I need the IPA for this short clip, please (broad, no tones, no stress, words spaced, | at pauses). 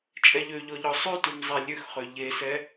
t͡ʃʼɛʎøʎɔ ʎɔsˤʉtʉm zˤelʲøxχø ʎesɛ